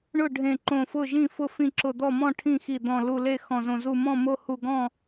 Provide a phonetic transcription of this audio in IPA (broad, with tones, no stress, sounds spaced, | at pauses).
ɳ ʊ˥˩ ɖʱ ẽ˧˩ ǃ õ˧˩ f ʊ˥˩ ʒ ĩ˥˩ f ʊ˥˩ f ĩ˥˩ ǁ ʊ˧˩ d̪ ɔ˥˩ m ɔ̃˥˩ ʈʰ ĩ˥˩ x i˧˩ d̪ ɔ̃˧˩ l u˧˩ l e˥˩ x ɔ̃˧˩ z õ˧˩ z u˧˩ m ɔ̃˥˩ m o˥˩ h u˧˩ ɡ ɔ̃˥˩